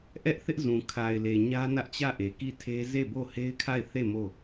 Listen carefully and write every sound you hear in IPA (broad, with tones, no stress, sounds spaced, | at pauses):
ʔ ɛ˦ ʔ θ ɪ˦ ʔ z ũ˨ kʰ a˨ ɪ̯ l e˨ ɲ ä˦ n ä˦ ʔ t͡ɕ ä˦˨ ʔ e˨ k i˦˨ tʰ e˦ z e˦˨ b o˦˨ h e˦ ɪ̯ kʰ a˦˨ ɪ̯ θ e˦˨ m o˦˨